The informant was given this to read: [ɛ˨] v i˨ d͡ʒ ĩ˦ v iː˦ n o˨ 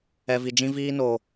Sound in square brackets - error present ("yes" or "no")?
no